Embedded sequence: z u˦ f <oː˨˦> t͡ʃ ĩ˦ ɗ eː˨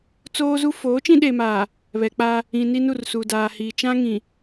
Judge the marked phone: correct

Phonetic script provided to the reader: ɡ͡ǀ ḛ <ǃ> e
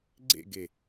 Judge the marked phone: incorrect: ɡ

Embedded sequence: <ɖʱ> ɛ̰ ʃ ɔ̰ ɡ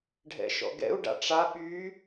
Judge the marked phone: correct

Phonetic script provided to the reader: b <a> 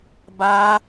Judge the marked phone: correct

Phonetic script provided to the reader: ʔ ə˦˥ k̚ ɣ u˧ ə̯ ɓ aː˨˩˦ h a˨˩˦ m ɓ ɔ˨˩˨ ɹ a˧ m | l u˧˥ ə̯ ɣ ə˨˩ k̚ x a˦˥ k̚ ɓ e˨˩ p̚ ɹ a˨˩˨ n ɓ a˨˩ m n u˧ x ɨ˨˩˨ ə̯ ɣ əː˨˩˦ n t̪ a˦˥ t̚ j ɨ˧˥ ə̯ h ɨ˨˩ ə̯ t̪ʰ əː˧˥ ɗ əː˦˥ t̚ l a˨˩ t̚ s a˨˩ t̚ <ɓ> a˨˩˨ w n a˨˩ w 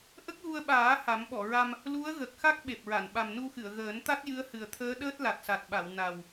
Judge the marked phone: correct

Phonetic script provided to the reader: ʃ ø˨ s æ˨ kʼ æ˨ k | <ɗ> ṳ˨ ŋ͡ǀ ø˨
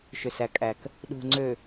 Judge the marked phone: correct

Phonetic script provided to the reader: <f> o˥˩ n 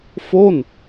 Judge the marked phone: correct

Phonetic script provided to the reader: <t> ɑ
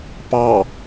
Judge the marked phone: incorrect: p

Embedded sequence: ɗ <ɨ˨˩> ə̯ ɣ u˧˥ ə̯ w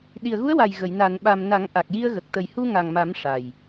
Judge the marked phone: incorrect: i˨˩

